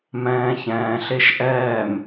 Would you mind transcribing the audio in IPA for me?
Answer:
mɛ̃ːçɛ̃ːɬeʃ ʔɛːm

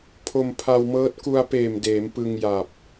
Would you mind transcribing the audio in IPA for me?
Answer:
pʰo˧mpʰa˧wmɤː˦˥t̚ ku˧a̯peː˨˩m deː˩˦mpɯ˧ŋ ja˨˩p̚

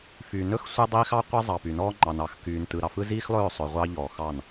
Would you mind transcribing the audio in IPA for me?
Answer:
fy˨nɵ˦x sʷe˦ dˤiː˦x ɑ˦ qʷe˦zˤɑ˨py˨nɔː˦ ŋ͡ǃɑ˨nɑ˨x kyː˨n tɯ˨ɾɑ˨fɯ˦ ziː˦xlˠɵː˦˨sˤɵ˨ ʁʷɑ˦ ʎɔː˨xɑ˦˨n

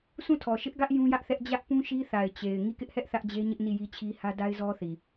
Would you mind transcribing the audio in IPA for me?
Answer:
sʰũ˦˨tʰɔ˨ʃɪ˦ʔɡä˦ʔ jũ˦jä˦ʔθɛ˦ʔ d͡ʑä˦ʔpũ˦ ʃi˦θa˨ɪ̯ t͡ɕe˨ɪ̯ ŋi˦˨kɪ˦ʔhɛ˦ʔ θä˦ʔd͡ʑe˦ɲɪ˦ʔ ni˦˨ji˦t͡ɕʰi˦ hä˦ da˦ɪ̯zɔ˦θi˨

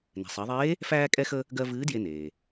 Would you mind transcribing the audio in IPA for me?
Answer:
nɛ̤˩sˤɜ˩˧ðˤeː˧˥ | fæː˧kʼɛ˧xə˧ | ɡɜ˧ vɨː˧˥dje˧neː˩

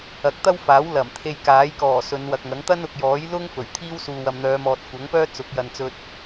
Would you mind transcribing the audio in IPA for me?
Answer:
ɐ˨˥k̚t̪ɐ˥wfaː˨˥w lɐ˨˩mt̪ʰe˧j kaː˨˥jkɔː˨˩ sɵ˨˧nwɐ˨k̚ŋɐ˨˥ŋ t̪ɐ˥nʊ˨k̚jɔː˨˥jlʊ˥ŋ fɵ˨˩ɥt̪ʰiː˥w suː˨wɐ˨mn̪œː˨˧mɔː˨t̚ kʷɐ˨˥ŋpœː˥ t͡sʊ˨˥k̚jɐ˨nt͡sɵ˧t̚

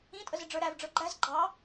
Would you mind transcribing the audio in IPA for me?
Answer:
ĩtʼəzɪ ɖ͡ʐə˞ɾæv ɖ͡ʐə˞ɡ͡ǃæz ɡ͡ǃɑ

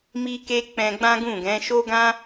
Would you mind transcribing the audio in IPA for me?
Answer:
mi˦ke˦ k͡pɛ̃˧ɡ͡bã˦ɡũ˦˨ɡɛ̃˨˦ ʃo˦ɡã˦

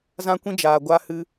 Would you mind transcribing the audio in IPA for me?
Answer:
zã˧kʷĩ˧d͡ʒaː˨ ɡʷa˧hɨ˧

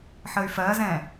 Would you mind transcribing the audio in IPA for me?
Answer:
ħəy̯fɜzɛ̃

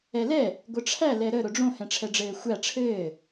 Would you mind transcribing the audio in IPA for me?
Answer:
ɛlɛ | ɡʷəʈ͡ʂʰæ lɛɾə ɾʊɖ͡ʐõ hɛ̃ʈ͡ʂʰɛɖ͡ʐɘːxʷæ ʈ͡ʂʰɘː

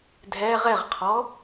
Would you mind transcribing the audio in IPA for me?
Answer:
dʱɛ ʁɛʁqʰɔ

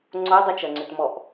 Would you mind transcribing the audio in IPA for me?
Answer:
ŋ͡ǀodˤʏt͡ʃɐŋ͡ǀʏt mɔʔ

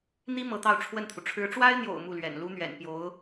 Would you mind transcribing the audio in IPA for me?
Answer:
n̪i˥ mɤ˧˥t̪ɑ˥˧ʊ̯ ʈ͡ʂʰwə˥˩nt̪ʰu˩ ʈ͡ʂʰɻ̩˧˥ʈ͡ʂwa˥ɪ̯n̪jo̰˨˩ʊ̯ mu˥˩lɥɛ̰˨˩n lu˥ n̪ɥɛ̰˨˩npjo˧˥ʊ̯

